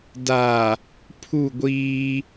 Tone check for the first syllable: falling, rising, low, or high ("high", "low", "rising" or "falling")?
low